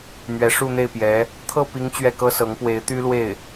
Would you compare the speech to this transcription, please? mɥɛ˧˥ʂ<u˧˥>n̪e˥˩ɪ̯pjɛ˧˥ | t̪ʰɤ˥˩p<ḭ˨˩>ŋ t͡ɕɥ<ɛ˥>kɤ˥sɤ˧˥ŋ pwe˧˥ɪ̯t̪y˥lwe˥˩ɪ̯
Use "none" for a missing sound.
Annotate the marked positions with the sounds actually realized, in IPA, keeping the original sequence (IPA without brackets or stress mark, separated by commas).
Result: u˥˧, i˧˥, ɛ˥˩